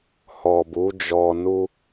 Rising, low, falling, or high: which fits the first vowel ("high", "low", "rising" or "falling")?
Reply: low